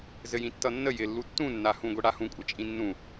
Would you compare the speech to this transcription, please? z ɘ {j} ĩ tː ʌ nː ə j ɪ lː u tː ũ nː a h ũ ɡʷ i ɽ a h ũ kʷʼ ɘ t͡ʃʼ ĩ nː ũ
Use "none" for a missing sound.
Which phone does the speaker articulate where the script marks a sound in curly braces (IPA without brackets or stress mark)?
j